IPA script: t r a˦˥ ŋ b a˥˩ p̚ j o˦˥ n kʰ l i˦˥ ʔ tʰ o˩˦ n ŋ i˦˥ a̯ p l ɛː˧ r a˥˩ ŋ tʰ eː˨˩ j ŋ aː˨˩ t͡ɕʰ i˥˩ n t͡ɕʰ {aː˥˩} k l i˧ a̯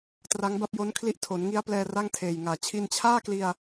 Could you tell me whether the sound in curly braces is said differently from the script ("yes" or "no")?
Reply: no